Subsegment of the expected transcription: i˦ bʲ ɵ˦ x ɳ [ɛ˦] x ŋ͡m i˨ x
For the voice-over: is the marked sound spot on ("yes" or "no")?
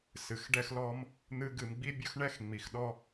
yes